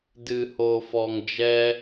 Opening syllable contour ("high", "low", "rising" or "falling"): low